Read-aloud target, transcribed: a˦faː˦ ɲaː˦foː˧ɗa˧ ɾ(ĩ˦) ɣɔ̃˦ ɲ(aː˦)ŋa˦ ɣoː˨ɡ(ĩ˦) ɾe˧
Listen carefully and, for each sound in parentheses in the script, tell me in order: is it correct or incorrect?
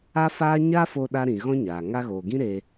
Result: incorrect, incorrect, correct

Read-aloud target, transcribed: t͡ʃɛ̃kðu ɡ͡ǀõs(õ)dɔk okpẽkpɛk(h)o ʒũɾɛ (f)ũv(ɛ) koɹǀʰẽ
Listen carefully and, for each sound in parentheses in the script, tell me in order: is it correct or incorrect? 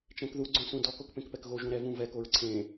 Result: incorrect, incorrect, incorrect, correct

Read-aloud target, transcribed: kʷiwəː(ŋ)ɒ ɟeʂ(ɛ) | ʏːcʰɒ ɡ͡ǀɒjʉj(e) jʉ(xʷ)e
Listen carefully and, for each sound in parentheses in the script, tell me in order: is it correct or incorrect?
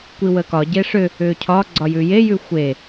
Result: incorrect, incorrect, correct, correct

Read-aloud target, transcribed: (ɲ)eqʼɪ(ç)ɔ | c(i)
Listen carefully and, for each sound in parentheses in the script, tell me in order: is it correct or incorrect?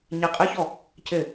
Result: correct, correct, incorrect

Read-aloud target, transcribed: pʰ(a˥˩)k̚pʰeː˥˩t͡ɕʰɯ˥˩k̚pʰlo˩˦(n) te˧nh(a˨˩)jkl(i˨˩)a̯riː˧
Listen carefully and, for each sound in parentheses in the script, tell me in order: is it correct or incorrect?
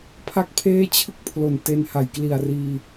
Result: correct, correct, correct, correct

